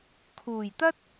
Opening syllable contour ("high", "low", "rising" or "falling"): low